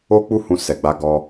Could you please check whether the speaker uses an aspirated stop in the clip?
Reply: no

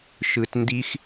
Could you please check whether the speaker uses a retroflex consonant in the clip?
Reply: no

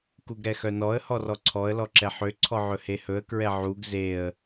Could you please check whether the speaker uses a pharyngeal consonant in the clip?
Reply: yes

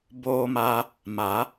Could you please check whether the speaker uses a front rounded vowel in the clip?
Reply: no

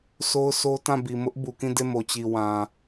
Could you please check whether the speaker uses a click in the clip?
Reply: no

